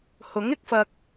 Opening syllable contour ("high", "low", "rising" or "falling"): rising